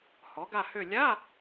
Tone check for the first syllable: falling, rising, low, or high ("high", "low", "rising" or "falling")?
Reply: rising